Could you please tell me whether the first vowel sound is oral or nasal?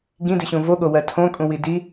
nasal